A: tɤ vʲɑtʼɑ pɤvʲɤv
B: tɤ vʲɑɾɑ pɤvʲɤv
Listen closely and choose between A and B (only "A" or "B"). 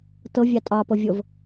A